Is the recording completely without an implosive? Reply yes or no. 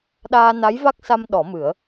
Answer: no